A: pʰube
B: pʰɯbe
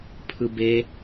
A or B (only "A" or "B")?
B